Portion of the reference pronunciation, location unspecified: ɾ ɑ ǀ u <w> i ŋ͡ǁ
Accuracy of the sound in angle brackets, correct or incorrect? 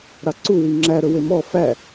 correct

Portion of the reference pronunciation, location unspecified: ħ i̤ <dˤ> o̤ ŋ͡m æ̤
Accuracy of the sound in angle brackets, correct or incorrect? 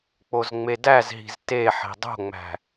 correct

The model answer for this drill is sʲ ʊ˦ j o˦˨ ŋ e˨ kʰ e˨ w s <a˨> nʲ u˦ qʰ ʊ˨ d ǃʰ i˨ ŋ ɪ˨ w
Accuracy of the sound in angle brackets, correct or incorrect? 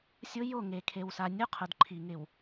correct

